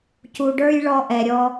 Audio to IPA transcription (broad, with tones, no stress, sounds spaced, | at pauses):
c u˩ ɖ ə˞˧ j ɭ ɔ˧ ʔ ɛ˩ ɾʲ ɔ˧